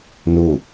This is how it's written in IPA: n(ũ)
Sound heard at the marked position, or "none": u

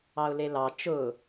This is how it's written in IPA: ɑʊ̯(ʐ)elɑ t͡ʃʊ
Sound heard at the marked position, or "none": l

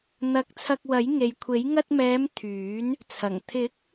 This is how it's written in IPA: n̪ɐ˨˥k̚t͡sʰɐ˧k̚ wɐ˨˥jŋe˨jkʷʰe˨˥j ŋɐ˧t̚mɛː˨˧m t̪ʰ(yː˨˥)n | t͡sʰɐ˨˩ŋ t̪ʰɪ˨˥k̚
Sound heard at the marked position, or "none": yː˨˥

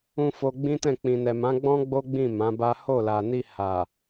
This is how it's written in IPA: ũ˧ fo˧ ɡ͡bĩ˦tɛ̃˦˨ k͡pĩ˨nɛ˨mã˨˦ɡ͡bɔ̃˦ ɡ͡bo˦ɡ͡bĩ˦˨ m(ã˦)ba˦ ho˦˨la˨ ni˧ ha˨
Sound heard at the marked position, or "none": ã˨˦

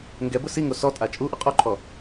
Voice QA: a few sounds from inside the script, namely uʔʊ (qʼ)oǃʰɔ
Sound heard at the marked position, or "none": qʼ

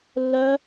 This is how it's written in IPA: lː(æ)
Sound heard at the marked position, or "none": œ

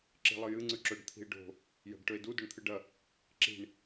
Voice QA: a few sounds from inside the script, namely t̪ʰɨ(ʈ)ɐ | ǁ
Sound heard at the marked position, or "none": ɖ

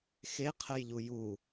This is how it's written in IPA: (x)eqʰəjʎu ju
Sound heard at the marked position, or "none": x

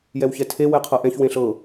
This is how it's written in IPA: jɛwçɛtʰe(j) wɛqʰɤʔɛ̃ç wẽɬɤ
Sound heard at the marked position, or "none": none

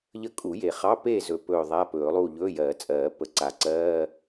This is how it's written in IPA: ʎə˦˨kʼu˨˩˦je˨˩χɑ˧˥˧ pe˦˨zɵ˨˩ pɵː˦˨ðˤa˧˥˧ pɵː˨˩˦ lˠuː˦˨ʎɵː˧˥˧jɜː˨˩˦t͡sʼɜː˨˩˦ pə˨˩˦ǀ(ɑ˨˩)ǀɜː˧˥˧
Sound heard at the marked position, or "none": a˨˩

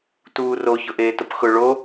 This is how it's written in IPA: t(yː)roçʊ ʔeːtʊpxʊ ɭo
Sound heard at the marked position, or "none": uː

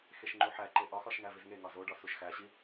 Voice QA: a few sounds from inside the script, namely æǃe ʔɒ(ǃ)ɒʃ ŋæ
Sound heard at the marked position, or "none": x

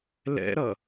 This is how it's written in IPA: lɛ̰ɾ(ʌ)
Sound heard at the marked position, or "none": ʌ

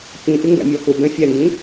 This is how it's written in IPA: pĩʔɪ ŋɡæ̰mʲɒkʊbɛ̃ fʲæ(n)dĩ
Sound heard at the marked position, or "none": n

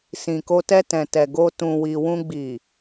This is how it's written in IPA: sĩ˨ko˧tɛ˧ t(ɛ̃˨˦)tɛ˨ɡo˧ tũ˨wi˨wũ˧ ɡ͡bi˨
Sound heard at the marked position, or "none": ɛ̃˨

